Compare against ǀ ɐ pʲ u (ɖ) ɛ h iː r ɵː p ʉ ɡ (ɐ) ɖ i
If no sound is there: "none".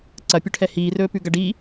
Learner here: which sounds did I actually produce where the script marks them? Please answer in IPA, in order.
ʈʰ, ɐ

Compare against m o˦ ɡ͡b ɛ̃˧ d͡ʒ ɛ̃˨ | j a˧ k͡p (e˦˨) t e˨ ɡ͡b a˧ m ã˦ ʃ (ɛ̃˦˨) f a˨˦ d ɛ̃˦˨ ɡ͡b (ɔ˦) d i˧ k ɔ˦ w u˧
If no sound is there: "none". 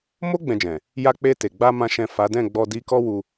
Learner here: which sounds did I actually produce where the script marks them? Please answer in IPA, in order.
e˧, ɛ̃˦˨, ɔ˧

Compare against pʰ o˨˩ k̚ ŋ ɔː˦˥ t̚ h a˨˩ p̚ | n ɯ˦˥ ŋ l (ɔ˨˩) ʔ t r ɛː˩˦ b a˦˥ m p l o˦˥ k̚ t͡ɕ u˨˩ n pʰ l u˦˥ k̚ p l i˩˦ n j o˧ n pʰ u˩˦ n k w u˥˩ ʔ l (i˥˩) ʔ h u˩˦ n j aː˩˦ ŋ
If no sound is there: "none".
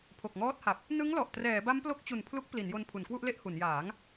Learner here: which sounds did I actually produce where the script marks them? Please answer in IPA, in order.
ɔ˨˩, e˥˩

